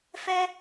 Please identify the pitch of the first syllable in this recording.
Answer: high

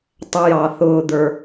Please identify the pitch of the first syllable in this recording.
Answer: high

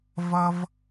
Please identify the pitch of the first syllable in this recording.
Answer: high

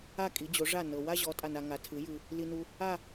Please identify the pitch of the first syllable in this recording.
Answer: falling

